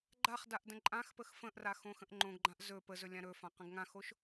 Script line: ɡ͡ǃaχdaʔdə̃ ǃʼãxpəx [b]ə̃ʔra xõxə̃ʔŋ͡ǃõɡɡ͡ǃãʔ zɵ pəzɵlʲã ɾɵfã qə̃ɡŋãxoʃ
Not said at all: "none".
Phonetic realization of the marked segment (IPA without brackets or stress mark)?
f